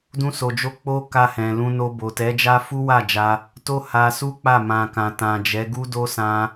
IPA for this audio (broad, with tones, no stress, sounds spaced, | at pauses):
d ũ˧ s o˨ d͡ʒ o˧ k͡p o˦ k a˧ h ɛ̃˨ l ũ˧ n o˧ b o˨ t ɛ˨˦ d͡ʒ a˦ f u˦ w a˦˨ d͡ʒ a˧ | t o˦ h a˧ s u˦ k͡p a˦˨ m ã˨ k ã˨ t ã˨ d͡ʒ ɛ˨˦ ɡ u˦ d o˦ s ã˧